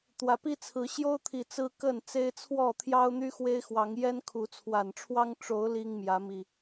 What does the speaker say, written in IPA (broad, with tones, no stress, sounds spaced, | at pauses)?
t̪ w ä˨˩ p i˦ t͡sʰ ɹ̩˨˦ ɕ j o˦ ʊ̯ t̪ʰ i˨˩ t͡s ɹ̩˦ k ə˥˨ n t͡s e˦ ɪ̯ t͡sʰ w ɔ˥˨ t̪ʰ j ɑ˦ ʊ̯ n̪ y˦ x w e˦ ɪ̯ x w ɑ˨˦ ŋ j ɛ˦ n kʰ u˨˦ t͡sʰ w a˨˩ n ʈ͡ʂʰ w ɑ˦ ŋ ʈ͡ʂ o˨˦ ʊ̯ l i˦ ŋ m j ä˨˦ m i˨˩